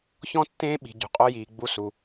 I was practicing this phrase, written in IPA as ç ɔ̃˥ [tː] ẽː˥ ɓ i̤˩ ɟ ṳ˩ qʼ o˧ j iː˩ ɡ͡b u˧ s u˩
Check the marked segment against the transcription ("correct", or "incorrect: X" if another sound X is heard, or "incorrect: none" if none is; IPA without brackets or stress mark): correct